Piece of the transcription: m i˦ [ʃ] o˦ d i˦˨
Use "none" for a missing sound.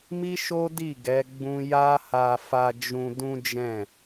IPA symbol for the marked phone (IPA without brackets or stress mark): ʃ